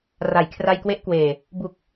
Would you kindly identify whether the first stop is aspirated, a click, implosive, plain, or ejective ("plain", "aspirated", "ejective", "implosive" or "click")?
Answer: aspirated